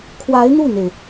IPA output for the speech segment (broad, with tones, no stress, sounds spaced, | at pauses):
kʰ w a˧˥ ɪ̯ n̪ u˥˩ n̪ e˩ ɪ̯